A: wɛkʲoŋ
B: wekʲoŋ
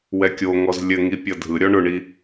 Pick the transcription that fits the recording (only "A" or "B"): A